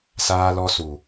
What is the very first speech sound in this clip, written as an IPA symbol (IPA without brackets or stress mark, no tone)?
s